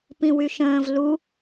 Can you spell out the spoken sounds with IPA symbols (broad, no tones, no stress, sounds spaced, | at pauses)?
p ĩ w y ʃ ə̃ː v l u